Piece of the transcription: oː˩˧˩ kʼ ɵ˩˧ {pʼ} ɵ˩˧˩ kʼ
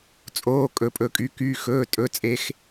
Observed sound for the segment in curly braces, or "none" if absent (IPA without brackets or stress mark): pʼ